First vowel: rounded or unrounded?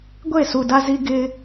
unrounded